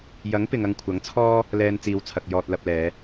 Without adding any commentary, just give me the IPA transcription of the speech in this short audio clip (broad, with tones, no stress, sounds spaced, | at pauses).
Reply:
j ɐ˨˥ ŋ p ɪ˨ ŋ ɐ˧ ŋ kʷʰ ɐ˨˥ ŋ t͡sʰ ɔː˥ | l ɛː˧ n t͡s iː˨˧ w t͡sʰ ɐ˨ k̚ j ɔː˧ t̚ l ɐ˧ p̚ l ɛː˨˧